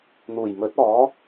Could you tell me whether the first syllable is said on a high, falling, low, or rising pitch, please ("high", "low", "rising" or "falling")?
low